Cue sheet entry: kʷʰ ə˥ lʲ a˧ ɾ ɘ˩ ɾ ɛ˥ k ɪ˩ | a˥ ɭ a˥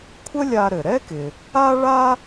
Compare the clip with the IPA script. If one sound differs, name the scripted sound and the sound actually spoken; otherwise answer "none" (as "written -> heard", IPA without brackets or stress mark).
none